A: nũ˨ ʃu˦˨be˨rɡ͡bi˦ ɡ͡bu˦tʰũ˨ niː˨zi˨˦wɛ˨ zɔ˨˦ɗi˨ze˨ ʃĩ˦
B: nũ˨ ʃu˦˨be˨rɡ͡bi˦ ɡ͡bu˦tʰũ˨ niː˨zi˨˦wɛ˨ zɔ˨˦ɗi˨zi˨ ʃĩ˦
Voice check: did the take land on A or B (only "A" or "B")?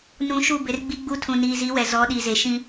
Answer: A